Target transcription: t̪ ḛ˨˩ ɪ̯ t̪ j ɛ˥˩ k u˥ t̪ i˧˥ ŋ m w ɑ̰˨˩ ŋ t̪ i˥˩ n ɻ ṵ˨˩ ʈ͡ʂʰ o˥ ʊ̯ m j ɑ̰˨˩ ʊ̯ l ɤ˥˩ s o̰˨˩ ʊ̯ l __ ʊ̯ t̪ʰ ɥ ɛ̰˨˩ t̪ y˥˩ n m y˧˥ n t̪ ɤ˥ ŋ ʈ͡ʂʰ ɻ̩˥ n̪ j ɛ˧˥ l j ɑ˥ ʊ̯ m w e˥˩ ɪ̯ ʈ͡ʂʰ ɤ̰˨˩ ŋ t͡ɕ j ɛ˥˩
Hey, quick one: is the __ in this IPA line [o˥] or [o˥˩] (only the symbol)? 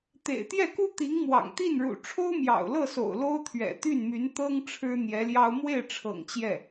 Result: o˥